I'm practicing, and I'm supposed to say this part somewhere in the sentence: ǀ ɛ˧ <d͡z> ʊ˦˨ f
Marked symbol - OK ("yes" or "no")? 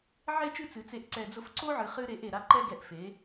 yes